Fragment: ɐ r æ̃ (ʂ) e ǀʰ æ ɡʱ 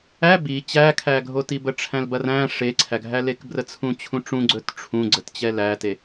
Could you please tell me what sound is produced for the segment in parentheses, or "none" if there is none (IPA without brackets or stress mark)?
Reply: ʂ